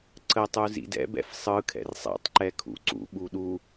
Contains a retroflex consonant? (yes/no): no